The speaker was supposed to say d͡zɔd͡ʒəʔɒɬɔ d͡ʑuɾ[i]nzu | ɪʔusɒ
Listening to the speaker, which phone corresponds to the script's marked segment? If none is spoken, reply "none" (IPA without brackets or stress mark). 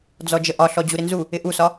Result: ɪ